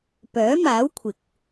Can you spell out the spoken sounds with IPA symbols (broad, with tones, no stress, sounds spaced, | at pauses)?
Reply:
p œː˨˥ m aː˨˥ w kʷʰ ɪ˨ k̚